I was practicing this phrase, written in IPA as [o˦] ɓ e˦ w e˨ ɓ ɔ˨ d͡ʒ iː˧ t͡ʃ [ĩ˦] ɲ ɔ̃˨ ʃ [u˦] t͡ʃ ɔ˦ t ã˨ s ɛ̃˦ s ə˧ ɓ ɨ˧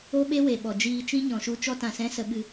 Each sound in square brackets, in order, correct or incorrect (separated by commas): correct, correct, correct